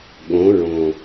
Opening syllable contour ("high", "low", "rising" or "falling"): rising